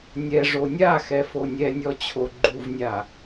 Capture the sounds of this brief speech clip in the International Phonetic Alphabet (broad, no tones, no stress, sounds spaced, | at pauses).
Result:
nʲ ɛ ʐ o nʲ a x ɛ f o nʲ ɛ nʲ ɔ t͡ɕʰ o ɡ͡ǃ u v nʲ a